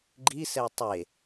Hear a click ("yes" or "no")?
yes